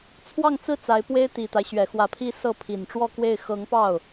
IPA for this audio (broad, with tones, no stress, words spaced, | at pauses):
t͡sʰwɑ˥˧ŋt͡sɹ̩˥˩ t͡sa˧˥ɪ̯pwe˥ɪ̯ t̪i˨˩t̪a˦ɪ̯ ɕɥɛ˨˩xwä˧˥pʰi˥˧ sɤ˥˩ pʰi˨˩nʈ͡ʂwɔ˥˧kwe˥˩ɪ̯ xɤ˧˥ŋpɑ˥˩ʊ̯